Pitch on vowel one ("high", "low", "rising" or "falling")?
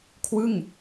falling